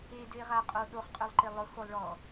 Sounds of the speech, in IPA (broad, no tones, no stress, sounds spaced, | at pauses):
e d ʏ e̯ ʁ a qʼ o ɗ o χ qʼ ø lˠ ǃ e lˠ ʊ x o lˠ ɭ ɔ